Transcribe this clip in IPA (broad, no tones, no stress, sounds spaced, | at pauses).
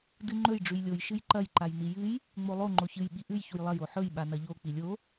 d ɨ ŋ͡ǃ ɵ j ɖ͡ʐ ʉ j lʲ o j ʃ ɨ j ǃ ɐ j ǃ a j n i j ɨ j | ŋ͡m o lˠ o ŋ͡ǃ o ç ɨ j ɓ i ʔ ʉ j ç u j lˠ ɐ j o ħ ɵ j ɓ a n ɐ ʎ o k͡p i lʲ o